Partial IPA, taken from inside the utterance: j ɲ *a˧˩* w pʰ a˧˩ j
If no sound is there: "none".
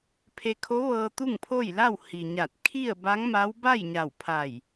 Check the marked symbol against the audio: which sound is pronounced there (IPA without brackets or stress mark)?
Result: a˧˩